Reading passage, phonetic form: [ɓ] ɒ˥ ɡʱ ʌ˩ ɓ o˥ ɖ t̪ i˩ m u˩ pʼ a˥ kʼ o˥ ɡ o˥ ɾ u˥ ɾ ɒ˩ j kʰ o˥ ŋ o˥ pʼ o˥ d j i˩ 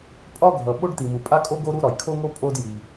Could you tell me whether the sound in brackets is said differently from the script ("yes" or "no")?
yes